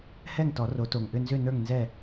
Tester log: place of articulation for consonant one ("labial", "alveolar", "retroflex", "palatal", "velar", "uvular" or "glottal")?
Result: glottal